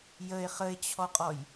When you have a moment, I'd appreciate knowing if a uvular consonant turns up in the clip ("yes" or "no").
yes